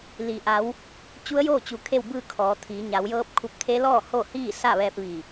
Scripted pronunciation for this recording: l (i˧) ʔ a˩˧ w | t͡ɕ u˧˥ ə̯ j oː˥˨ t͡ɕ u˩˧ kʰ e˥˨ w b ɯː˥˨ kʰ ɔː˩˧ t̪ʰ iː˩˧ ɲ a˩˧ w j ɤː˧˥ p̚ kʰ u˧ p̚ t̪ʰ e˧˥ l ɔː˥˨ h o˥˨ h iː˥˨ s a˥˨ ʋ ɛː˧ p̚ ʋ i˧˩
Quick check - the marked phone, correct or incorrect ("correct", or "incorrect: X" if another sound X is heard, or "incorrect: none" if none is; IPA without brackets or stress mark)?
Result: incorrect: i˩